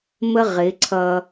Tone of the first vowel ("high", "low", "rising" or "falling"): high